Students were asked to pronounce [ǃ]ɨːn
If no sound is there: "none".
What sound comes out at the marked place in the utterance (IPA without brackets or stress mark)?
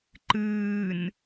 ǃ